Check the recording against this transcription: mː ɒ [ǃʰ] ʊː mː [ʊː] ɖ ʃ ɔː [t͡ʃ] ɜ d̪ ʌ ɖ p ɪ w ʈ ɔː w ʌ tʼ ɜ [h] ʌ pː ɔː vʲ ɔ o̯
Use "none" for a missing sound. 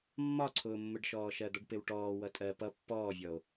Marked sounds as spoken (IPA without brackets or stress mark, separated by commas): ǀʰ, ʊ, ʃ, p